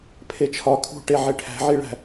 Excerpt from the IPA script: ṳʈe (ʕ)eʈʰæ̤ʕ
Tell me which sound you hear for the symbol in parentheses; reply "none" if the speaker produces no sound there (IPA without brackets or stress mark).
ʕ